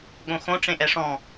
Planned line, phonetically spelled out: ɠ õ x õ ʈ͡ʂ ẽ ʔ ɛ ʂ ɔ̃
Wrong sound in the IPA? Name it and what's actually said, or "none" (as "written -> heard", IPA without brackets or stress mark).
none